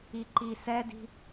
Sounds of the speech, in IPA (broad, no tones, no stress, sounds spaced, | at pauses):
i ǃ i s ɛ d i̤